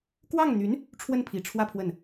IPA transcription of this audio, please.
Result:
kwɑ˥˩ŋn̪y˧˥n | ʈ͡ʂʰwə˥˩npʰi˨˩ʈ͡ʂʰwä˥˧ pʰwə˥˩n

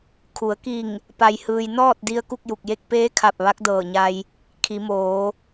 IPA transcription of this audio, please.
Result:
kʰu˩˧ə̯ki˧˩ŋ | pa˧jhɯː˧j nɔː˥˨t̚di˧ə̯ ku˥˨k̚ju˧˩k̚je˥˨k̚ peː˧˥kʰa˧˩p̚ ʋa˧˥k̚dɤː˧˩ɲa˧j | kʰi˩˧moː˩˧

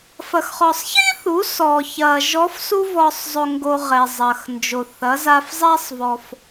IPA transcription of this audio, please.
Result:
fɐ˩xχɔ˩sˤçi˥θu˩˧ sɔ˩çɐ˩ ʒɔ˧˥f su˥vɔ˧sˤzˤo˧ŋɡo˧ ʁɛ˩zˤɐ˩x nd͡ʒo˩θɐ˩˧ za˧fzˤɛ˥sˤvɔ˧f

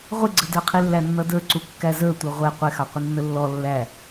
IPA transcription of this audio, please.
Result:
ʁʷɪɡ͡ǀədə˞qʰi lːænːʌdə˞ǀu kːæzə˞tʷʌ ʁʷɛ qʷɪxɑqʷɪ nːəlːɔ lːæ

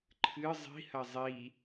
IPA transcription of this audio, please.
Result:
ǃʰɨ zˤi̤hɐ zˤi

